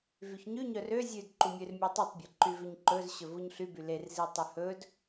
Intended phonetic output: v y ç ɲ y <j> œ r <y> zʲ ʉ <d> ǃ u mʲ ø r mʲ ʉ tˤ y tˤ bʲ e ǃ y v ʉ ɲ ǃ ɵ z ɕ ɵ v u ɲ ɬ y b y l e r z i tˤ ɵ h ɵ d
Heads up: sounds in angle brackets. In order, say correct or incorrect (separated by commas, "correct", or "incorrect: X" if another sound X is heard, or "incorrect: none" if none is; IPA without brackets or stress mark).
incorrect: ɲ, incorrect: ø, correct